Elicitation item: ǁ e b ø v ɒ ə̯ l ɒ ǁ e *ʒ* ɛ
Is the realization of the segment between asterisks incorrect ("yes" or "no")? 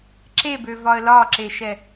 yes